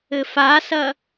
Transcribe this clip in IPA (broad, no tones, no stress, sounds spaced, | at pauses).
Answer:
ɘ f a s ɐ